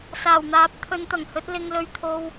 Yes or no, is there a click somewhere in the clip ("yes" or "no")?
no